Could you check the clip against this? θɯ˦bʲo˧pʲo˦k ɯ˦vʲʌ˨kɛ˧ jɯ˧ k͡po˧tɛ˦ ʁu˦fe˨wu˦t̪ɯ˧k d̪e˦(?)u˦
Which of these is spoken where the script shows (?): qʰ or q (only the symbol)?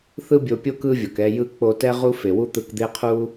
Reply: qʰ